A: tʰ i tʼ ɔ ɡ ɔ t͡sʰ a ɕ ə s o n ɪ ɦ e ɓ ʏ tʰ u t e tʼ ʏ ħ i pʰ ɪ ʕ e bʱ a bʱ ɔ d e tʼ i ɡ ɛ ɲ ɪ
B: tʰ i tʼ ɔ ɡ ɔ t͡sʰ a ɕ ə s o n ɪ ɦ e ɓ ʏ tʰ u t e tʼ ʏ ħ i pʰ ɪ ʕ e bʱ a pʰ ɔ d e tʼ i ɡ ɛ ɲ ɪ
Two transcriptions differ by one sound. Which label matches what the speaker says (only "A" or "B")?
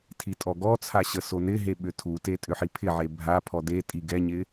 B